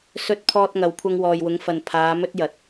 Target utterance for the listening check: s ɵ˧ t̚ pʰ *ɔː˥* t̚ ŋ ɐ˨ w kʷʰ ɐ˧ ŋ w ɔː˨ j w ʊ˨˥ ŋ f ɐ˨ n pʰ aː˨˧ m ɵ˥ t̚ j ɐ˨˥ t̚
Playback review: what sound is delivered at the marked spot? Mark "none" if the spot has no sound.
ɔː˧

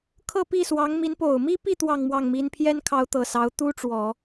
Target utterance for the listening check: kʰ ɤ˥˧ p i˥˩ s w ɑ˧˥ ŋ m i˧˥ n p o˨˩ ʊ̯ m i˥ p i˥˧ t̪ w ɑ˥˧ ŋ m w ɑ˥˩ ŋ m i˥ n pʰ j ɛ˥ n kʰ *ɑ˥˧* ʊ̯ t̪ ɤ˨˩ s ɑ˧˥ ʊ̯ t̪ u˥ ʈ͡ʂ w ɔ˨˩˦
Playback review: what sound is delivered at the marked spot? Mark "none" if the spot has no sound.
ɑ˧˥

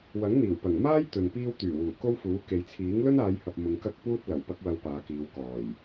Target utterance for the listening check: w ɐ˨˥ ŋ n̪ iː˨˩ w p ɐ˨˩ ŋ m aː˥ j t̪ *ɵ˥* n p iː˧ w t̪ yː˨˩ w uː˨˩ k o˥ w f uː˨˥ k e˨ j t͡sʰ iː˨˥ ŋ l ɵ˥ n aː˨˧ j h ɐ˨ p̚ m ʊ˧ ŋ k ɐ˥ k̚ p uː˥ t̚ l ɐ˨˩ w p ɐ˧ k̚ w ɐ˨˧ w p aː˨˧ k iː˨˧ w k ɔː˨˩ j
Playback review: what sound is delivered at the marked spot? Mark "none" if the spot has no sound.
ɵ˨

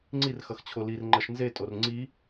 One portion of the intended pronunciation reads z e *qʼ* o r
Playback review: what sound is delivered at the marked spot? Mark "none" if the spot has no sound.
tʼ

